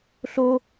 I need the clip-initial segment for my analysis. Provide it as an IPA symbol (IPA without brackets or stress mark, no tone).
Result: ɬ